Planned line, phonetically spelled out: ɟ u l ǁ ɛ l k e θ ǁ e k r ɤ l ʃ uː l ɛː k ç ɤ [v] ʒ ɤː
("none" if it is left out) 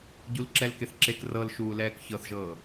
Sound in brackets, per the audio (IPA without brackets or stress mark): θ